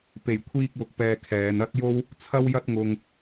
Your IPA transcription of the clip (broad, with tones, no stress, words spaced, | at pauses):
pe˨˩jkʷʰiː˧k̚wʊ˨k̚pɛː˨ kʰɛː˨˧nɐ˥t̚jo˥w | t͡sʰɐ˥wjɐ˥t̚ŋʊ˧ŋ